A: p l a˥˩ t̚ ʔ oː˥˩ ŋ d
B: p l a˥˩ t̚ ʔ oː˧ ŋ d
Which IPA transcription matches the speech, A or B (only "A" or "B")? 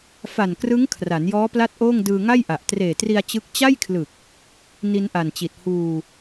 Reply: A